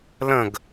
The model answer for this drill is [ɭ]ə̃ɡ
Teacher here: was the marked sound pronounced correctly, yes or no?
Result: no